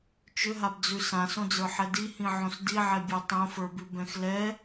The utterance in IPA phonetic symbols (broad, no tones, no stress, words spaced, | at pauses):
t͡ʃʏɦabd͡zʉ sãsõd͡zə˞ħɛ dihĩʕõs diʕɛbʲə˞ tˤõfə˞bʉbɛ̃x lɛ